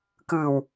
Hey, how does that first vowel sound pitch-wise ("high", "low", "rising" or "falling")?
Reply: low